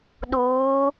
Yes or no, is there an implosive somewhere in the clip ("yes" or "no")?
yes